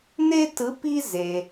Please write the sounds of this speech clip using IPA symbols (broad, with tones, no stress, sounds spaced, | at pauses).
n e˦ t ɯ˨˥ p i˦ z e˩